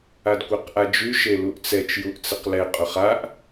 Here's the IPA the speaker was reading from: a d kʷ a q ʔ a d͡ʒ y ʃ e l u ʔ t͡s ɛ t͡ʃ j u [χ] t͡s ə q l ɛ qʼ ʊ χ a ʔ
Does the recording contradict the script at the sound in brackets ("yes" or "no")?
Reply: yes